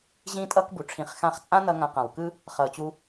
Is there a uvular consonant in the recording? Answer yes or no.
yes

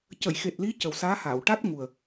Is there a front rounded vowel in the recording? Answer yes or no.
no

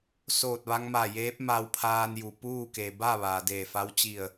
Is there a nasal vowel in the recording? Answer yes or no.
no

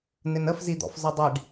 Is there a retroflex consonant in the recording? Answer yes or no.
yes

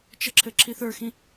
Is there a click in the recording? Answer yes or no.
yes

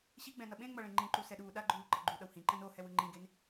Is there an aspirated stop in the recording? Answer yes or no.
no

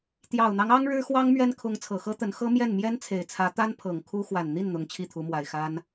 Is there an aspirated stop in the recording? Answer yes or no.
yes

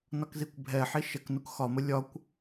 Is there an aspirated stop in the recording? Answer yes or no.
no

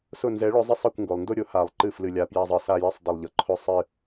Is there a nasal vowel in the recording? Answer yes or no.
no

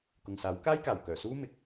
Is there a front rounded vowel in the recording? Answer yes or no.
yes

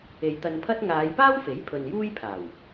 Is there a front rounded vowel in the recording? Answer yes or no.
no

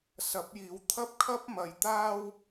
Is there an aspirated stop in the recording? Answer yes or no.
yes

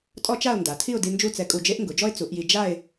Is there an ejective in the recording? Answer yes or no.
yes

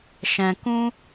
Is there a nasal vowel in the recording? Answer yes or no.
yes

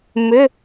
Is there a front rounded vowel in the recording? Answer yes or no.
yes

